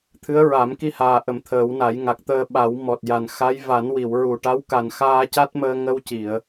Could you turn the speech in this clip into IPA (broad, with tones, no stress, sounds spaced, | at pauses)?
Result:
t̪ʰ ɨ˧˥ ə̯ ɹ a˨˩˦ m k i˧ h aː˨˩ ʔ ə˨˩ m t̪ʰ əː˨˩˦ w n a˨˩˦ j ŋ a˨˩ k̚ t̪ əː˧ ɓ a˨˩˦ w m ɔ˨˩ t̚ j a˨˩ n x a˧˥ j v a˨˩˦ n w i˨˩˨ w ɹ u˨˩ ʈ a˧˥ w k a˨˩ n x aː˧ c a˦˥ t̚ m əː˧ ŋ ə˧ w c i˨˩˨ ə̯